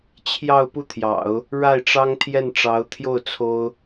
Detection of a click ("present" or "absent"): absent